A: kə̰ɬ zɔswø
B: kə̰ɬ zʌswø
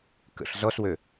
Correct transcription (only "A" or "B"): A